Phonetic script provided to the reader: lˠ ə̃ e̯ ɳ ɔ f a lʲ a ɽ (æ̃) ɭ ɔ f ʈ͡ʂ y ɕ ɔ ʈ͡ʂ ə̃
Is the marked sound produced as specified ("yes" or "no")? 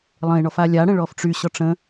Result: no